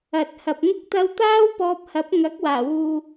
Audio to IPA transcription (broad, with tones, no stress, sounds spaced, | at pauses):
ɐ˨ t̚ h ɐ˨ p̚ ŋ ʊ˥ k̚ t̪ ɐ˧ w t̪ aː˥ w p ɔː˧ p̚ h ɐ˨˥ p̚ ŋ ɐ˨˥ k̚ w aː˨˩ w uː˨